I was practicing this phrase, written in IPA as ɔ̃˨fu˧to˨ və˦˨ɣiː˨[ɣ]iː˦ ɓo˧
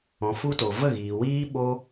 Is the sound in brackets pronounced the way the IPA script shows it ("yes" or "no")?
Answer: no